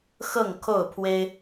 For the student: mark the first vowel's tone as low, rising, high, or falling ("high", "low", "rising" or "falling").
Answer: falling